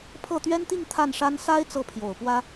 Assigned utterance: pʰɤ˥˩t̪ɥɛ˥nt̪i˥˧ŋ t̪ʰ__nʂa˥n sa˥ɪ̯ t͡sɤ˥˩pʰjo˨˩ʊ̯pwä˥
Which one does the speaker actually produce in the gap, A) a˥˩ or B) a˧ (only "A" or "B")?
A